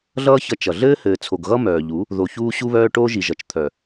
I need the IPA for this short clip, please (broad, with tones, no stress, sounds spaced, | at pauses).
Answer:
ɮ ʌː˦ ç ʌ˧ t͡ʃ ʌ˨ ɮ ɘː˦ h ɘː˨ t͡sʰ o˨ ɡ ɣ ʌ˦ m œː˨ ʎ u˨˦ | ð o˨ ç uː˦ ɕ u˦ β œː˦ ʈ oː˦ ʒ i˨ ʒ ʌ˨ t͡ʃ t̪ʰ œ˨